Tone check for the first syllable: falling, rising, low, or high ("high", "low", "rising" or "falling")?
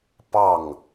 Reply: falling